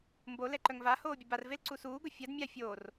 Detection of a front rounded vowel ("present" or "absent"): present